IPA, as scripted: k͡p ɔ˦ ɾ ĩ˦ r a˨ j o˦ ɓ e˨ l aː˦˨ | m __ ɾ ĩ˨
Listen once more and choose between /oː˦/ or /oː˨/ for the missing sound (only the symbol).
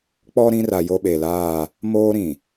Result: oː˦